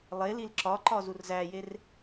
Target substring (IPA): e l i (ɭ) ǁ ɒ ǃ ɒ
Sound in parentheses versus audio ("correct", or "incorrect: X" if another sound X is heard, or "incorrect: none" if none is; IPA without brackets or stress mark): incorrect: l